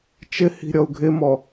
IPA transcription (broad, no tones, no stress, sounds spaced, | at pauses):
t͡ʃ ɪ h i̤ ɾʲ ɔ u̯ ɡʱ ɪ m ɔ